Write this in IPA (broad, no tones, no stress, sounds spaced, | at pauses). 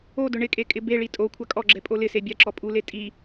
o d ʊ ɳ ɪ kʼ e kʼ ɪ b e ɭ i tʼ o kʷʰ a kʼ ɔ ɡ͡ǁ ɛ pʼ o l ɪ s e bʲ a ǁ ɔ pʼ u l e tʼ i